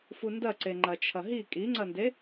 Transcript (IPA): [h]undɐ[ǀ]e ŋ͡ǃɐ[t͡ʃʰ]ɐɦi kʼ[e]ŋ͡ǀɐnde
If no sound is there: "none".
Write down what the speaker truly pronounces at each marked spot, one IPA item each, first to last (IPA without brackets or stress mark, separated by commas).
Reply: f, ǀ, t͡ʃʰ, i